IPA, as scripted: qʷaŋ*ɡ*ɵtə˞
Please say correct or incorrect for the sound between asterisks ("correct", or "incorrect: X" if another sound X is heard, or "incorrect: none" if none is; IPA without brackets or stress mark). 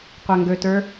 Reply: correct